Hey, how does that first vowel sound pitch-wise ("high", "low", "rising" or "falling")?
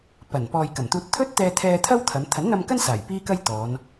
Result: low